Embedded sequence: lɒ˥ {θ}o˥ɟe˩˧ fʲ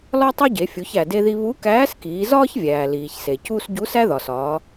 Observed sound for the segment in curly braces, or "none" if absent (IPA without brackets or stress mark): tˤ